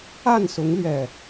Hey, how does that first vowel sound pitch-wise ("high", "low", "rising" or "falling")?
falling